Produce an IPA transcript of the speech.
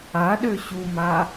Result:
a ɗ ø ɕ u m a

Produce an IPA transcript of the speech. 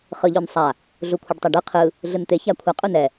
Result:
χ ɯ ʎ o n sˤ a | ɮ u kʷʰ ɯ ɖ tˤ a ɖ ɯ qʰ ɯ | ɮ ɯ n t̪ e ç a kʷʰ a qʼ u n ɛ

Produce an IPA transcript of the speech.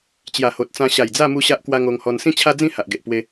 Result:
t͡ɕ j a˨˩ h o˨ t̚ t͡s ã˧ ɕ a˨˩ j d͡z a˥˧ m u˦ ɕ a˦ ʔ k w a˦ ŋ o˧ ŋ h ɔ˧ n s ĩ˥˧ t͡ɕʰ a˦ d͡z ĩ˥˧ h a˨ ʔ ɡ e˨ ʔ p w e˧

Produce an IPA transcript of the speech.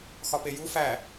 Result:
x ɒ p e j u f æ

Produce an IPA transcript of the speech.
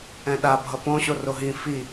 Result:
ɛ̃ ɗ a bʱ ʌ p õ ɕ o r o ɦ ĩ f i

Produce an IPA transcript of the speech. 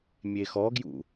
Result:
mʲ e x ɔ ɡ j ṵ

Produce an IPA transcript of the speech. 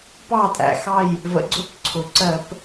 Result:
p ɑ˥˨ tʼ æ̰˩ x ɑ˥˨ j | v ə̰˨˥ ɡ͡ǀ ʊ˧˥˧ p ǀʰ ʊ˩ ǀ ɜ˧˩˧ p

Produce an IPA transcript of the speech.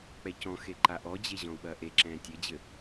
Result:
k͡p ɛ c ɔ̃ x e ǃ a ʔ ɔ d͡ʑ e ʑ ɔ̃ u̯ ɓ ɐː ʔ e ǁ ɛ̃ː tʲ ɘ d͡ʑ ɘ

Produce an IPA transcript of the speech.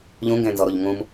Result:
ʎ ũ ŋ ɡ ẽ n z ɔ ɾ o ʎ ŋ ũ m

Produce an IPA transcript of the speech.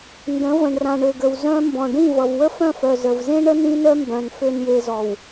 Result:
n d ə̃˨˦ v ə̃˨ ɳ r ã˨ ɳ ø˨ ɡ ə˨ w z œ̃˦ m b ɔ̃˨ ɖ ĩ˦˨ v ʌ˨ v w ə˦ f œ̃˦˨ f œ˨ z ə˨ v z ẽ˦ ɳ ə˦ n ĩ˦ n œ˦ m b œ̃˨ n f ø˨ n j e˨ z ɔ˨ w

